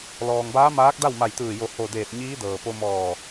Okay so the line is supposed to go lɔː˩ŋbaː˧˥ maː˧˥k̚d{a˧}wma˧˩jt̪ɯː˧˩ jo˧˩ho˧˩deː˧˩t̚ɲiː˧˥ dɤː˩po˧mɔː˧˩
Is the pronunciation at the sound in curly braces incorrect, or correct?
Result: incorrect